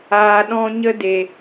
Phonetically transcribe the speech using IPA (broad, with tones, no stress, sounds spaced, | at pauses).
aː˨ ɗ ɔ̃˧ ɲ ə˦ d e˨